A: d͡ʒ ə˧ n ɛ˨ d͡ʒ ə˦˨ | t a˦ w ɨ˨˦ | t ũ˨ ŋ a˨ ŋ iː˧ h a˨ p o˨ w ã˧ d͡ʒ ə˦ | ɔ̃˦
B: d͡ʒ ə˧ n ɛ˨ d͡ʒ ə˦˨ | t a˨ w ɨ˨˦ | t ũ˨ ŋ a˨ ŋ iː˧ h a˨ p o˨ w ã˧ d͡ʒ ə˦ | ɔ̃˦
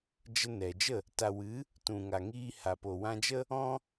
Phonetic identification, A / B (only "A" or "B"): B